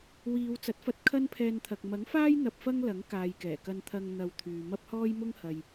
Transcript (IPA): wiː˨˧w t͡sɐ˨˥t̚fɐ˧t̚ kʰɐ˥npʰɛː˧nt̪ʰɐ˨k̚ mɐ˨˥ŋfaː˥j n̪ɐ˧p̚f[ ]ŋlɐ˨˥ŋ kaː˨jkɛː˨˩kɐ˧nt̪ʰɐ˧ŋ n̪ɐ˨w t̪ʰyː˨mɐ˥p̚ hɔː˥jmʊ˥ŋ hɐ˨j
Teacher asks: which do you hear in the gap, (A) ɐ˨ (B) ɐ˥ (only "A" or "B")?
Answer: B